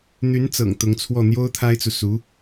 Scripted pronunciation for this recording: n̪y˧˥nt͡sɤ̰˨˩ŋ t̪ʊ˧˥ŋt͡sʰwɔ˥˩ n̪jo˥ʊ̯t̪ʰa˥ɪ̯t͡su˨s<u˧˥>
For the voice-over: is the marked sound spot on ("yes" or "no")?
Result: yes